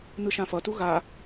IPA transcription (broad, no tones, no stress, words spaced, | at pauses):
n̪ɯʃãfʌtu ɣa